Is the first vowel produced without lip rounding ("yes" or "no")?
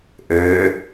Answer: no